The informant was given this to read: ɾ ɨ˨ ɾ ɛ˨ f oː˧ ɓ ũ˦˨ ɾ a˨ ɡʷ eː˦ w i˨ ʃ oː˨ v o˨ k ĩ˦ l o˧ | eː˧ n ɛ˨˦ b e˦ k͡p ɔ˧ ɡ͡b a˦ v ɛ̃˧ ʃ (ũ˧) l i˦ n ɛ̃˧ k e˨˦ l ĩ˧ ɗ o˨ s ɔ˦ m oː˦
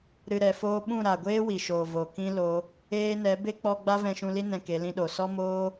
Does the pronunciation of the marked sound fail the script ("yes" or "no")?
no